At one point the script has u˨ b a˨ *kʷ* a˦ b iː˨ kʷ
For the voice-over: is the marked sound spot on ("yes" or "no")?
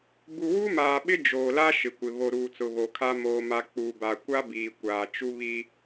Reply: yes